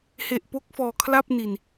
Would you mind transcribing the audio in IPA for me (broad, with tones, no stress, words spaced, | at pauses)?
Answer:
he˨˩ʔpo˦˥k̚fɔː˨˩ kʰla˥˩p̚ni˨˩n